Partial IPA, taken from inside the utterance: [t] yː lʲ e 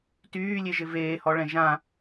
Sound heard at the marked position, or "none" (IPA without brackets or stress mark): t